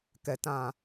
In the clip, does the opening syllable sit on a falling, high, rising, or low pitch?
low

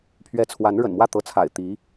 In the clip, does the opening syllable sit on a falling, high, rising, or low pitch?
rising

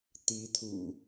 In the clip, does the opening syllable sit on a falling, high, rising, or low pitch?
rising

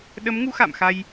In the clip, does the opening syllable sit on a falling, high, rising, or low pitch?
rising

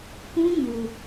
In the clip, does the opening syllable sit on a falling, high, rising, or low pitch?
high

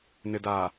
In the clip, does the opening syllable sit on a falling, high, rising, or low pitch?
low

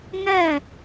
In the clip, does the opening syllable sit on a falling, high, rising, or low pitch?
falling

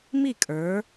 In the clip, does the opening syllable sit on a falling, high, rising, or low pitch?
falling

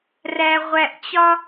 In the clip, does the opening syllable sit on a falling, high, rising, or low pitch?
low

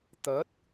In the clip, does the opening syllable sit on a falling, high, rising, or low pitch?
rising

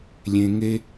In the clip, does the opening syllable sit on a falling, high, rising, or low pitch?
low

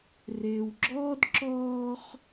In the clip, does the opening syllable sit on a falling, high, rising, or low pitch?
low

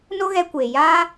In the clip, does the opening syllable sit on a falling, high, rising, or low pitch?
high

